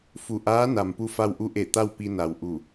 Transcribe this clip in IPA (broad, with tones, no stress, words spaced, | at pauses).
fu˧˩ ʔaː˧˥na˩m pu˧fa˧wʔu˧˥ ʔe˧˩ t̪a˥˨wpi˧na˩w ʔu˧˩